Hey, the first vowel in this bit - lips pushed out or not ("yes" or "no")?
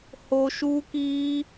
yes